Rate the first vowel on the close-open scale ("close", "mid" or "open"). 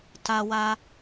open